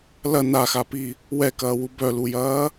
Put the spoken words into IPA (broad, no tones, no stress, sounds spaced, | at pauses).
l ɐ n a x a p i | w ɛ k ɐː w u b œ l u j ɐː